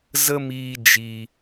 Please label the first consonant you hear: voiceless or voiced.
voiced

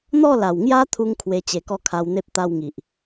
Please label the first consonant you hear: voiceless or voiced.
voiced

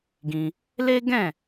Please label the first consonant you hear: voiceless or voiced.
voiced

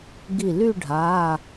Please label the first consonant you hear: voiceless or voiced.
voiced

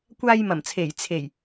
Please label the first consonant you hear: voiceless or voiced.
voiceless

